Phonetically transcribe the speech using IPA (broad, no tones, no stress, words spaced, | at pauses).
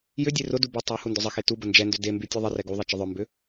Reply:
jʏ dʲerʊdu bʊ tˤu hundʊzˤəxe tubə nd͡ʒɛndʏ demby tʲɛðˤərɛ ɡuðˤɛ t͡ʃəðˤœmbʏ